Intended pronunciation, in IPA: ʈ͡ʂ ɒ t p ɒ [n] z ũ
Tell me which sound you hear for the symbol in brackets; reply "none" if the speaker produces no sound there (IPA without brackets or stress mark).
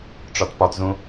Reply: t